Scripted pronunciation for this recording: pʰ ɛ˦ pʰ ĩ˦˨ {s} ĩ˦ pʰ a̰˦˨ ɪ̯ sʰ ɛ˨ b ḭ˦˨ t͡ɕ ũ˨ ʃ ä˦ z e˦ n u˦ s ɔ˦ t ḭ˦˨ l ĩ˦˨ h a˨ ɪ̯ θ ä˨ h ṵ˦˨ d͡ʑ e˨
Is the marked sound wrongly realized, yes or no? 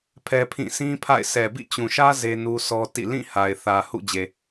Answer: no